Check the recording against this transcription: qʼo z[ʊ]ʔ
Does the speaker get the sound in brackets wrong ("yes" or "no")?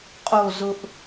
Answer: no